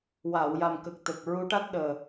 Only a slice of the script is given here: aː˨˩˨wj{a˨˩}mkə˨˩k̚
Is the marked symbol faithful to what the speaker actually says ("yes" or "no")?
yes